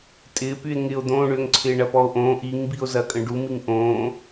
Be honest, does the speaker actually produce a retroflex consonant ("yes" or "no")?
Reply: yes